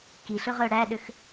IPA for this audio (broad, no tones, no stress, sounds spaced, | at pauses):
k i ɬ ɵ ʁ œ ɽ æ ɗ ø x